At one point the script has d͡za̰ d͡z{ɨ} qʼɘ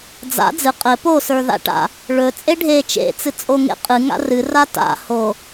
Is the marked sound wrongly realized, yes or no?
no